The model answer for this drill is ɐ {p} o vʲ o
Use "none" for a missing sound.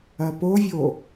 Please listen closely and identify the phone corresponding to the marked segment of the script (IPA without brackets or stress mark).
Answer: p